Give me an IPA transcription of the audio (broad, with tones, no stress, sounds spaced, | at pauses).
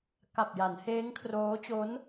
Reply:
k a˨˩ p̚ j a˩˦ n h eː˦˥ ŋ kʰ r oː˦˥ t͡ɕ o˦˥ n